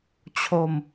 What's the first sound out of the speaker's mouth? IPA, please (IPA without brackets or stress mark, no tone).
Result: t͡ɕʰ